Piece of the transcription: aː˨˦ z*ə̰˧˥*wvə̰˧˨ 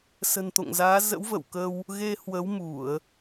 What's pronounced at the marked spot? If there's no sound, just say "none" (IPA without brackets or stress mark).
ə̰˧˥